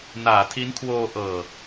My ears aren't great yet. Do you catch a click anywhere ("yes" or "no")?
no